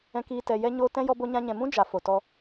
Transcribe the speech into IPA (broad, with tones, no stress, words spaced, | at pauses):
ɛ̃˦kiː˦ tɛ˧jɛ˦ɲo˦ tɛ̃˦ jɔ˦bo˦ɲã˦ɲɛ̃˧ mũ˦d͡ʒa˨ fo˨tɔ˧